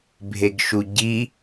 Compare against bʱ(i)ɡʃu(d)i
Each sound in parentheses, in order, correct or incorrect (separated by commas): incorrect, incorrect